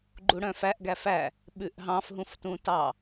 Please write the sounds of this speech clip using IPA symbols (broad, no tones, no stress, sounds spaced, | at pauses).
ɡ͡ǃ u ɽ œ̃ f æ ʔ ɡ æ f æ | ɓ ʉ ʔ ɦ ɑ̃ f ɦ ũ f t ũ t ɑ